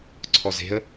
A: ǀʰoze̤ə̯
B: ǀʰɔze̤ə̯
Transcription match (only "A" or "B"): B